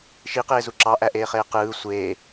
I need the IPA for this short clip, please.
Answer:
ʃ i q eː z u ǁ ɑ ʔ æ ʔ eː χ eː q ɯː sʷ eː

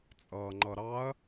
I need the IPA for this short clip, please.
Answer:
t͡sʼ ʌː ŋ͡ǃ ʌ ɾ ɑ ɐ̯

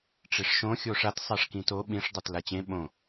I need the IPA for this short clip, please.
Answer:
ʈ͡ʂ e ʂ ʃ õ xʲ o ʂ a t sˤ a ʂ k ĩ t o ɓ ĩ ʂ dˤ ə˞ t l a t͡ɕ ẽ ɓ õ

